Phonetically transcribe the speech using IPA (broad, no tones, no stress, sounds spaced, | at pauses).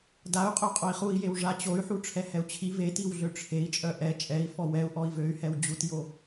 d a u̯ qʼ œ qʼ o i̯ χ u i̯ j e w ʐ a t͡ɕ o y̯ ħ u ʈ͡ʂʰ ɛ h ɛ u̯ t͡ɕʰ i v e t i w ɮ ø ʈ͡ʂʰ e i̯ t͡ʃʼ œ ʔ ɛ t͡ʃʼ ɛ i̯ f ɔ w ɛ u̯ ʔ ɔ i̯ v ø y̯ h ɛ w d͡ʑ u t j o